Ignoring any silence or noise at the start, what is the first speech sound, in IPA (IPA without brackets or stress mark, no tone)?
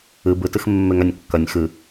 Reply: ɨ